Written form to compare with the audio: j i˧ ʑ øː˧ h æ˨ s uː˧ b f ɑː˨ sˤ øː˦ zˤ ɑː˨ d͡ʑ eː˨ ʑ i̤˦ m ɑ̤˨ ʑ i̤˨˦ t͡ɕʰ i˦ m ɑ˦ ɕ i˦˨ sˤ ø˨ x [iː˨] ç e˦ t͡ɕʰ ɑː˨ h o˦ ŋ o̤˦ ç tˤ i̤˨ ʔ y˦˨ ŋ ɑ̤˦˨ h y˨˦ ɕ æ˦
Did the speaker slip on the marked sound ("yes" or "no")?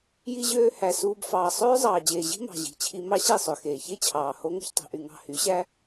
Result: yes